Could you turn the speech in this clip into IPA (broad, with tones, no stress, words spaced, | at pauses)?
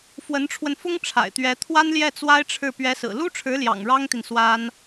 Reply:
fwə˧˥nʈ͡ʂʰwə˧nfʊ˥ŋ ʈ͡ʂʰa̰˨˩ɪ̯t̪ɥɛ˧˥ t̪ʰwa˥nljɛ˥˩ t͡swa˥ɪ̯ʈ͡ʂʰɻ̩˥˩ pɥɛ˧˥sɹ̩˨˩ lu˥ʈ͡ʂʰɻ̩˧˥ljɑ̰˨˩ŋ ɻɑ˥ŋt̪i˨n swa˥n